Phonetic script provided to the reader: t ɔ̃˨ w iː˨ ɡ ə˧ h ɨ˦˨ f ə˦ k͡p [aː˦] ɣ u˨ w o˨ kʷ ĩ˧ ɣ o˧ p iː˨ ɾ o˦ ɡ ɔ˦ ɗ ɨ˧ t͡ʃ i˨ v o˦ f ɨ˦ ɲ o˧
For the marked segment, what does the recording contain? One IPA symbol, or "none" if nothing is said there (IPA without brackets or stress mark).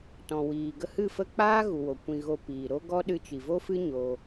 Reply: aː˦